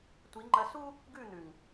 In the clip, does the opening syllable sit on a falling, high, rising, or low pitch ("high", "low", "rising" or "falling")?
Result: rising